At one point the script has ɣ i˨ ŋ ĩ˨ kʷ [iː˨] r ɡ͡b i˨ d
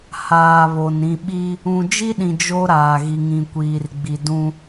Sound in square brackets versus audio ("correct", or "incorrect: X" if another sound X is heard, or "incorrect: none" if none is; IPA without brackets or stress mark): correct